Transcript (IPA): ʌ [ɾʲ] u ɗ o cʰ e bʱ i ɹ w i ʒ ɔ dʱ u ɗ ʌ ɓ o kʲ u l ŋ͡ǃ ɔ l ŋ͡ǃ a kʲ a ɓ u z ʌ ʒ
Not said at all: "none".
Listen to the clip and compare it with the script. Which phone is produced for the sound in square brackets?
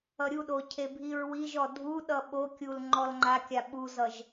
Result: ɾʲ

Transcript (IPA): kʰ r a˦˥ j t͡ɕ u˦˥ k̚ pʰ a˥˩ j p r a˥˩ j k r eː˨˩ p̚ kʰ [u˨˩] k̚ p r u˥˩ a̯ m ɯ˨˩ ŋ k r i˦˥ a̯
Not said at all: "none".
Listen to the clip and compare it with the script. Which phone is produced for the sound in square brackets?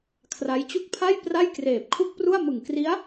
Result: u˥˩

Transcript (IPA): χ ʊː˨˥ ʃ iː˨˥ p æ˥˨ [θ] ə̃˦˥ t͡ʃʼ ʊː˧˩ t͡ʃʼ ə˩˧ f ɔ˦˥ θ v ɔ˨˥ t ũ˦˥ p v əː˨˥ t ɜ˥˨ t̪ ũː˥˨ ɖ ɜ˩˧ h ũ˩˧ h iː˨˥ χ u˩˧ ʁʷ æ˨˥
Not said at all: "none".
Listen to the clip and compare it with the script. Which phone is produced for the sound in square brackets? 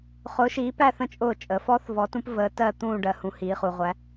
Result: θ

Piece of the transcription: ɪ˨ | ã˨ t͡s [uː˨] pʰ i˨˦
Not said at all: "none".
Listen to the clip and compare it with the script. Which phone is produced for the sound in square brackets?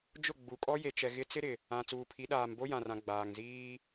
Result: uː˨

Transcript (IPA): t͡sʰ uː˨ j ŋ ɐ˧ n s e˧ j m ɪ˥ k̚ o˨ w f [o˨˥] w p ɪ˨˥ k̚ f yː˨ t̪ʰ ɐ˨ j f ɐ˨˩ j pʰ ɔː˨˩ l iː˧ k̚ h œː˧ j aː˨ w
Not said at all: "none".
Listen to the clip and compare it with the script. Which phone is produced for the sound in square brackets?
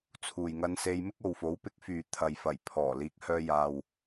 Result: o˨˥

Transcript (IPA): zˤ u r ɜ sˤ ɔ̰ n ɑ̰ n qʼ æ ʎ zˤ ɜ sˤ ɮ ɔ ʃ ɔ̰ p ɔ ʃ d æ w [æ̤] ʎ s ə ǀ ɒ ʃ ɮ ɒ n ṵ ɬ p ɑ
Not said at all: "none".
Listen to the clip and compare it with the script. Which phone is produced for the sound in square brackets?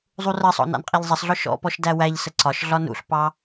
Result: æ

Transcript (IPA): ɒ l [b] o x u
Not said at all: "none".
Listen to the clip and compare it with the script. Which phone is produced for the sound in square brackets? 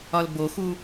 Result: b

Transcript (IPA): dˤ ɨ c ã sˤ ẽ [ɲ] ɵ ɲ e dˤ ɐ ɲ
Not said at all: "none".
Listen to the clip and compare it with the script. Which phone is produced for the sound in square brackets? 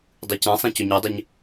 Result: c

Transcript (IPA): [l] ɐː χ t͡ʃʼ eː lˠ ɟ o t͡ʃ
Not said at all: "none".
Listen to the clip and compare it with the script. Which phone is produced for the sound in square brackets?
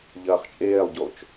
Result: ʎ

